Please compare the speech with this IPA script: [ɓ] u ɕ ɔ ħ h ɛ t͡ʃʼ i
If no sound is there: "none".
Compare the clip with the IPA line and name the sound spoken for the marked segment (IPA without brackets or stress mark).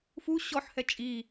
f